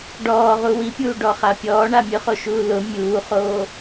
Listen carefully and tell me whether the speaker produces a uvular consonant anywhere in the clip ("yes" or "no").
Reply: yes